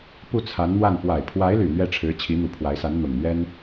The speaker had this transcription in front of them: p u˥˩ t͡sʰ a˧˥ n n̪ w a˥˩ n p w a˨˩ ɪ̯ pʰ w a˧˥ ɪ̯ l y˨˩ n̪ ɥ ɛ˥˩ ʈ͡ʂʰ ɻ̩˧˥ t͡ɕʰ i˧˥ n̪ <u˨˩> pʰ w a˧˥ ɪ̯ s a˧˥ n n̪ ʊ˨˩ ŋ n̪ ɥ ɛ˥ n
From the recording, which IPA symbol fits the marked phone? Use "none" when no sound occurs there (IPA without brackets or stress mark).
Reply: u˨˩